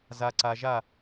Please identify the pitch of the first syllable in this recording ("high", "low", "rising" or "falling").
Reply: low